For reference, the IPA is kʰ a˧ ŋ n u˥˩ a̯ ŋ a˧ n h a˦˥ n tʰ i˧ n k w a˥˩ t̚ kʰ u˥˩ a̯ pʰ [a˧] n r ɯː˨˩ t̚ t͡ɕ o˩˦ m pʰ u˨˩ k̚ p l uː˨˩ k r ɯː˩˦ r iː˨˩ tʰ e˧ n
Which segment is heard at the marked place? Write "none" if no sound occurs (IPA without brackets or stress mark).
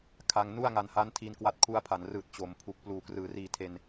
a˩˦